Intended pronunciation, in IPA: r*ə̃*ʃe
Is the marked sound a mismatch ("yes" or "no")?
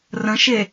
no